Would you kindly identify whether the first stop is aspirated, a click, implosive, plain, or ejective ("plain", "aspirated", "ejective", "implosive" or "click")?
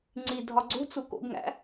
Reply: click